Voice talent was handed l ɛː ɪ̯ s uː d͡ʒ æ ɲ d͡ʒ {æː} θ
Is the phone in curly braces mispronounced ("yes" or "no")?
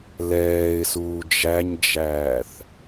no